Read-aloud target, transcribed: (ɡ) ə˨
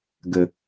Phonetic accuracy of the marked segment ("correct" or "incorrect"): correct